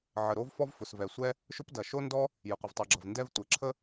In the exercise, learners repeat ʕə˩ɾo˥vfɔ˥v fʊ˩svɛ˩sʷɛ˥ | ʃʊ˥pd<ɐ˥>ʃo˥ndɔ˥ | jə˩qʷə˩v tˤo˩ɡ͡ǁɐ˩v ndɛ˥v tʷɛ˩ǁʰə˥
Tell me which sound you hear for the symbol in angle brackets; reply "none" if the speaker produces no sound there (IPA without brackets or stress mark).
ɐ˩